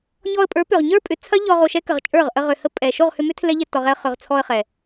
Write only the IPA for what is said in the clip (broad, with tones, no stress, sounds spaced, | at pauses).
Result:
ɲ ɔ˧ ə̯ pʼ ə˞˨˦ p ʏ˨ ʁ ɲ ə˞˦ pʼ ʏ˨ t͡sʰ ɐ˦ ʎ ɔ˧ ʁ o˧ ʃ ɛ˦ k ə˨ ʁ t͡ʃʼ ə˞˦˨ ʁ ʔ ə˧ ʁ ʏ˨ h ə˧ pʼ ɛ˨ ʃ o˦˨ ʁ h ʏ˧ m ʏ˦ tʰ l ɛ˦ ʎ ɛ˧ tː ɔ˨ ʁ ɛ˧ ə̯ χ ʏ˨ ʁ t͡sʰ ɔ˧ ə̯ χ ɛ˨